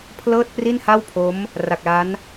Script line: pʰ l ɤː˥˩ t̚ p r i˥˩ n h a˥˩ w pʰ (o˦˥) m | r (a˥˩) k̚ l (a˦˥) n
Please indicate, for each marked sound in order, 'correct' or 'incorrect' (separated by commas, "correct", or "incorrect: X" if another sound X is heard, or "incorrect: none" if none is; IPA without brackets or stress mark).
correct, incorrect: a˨˩, correct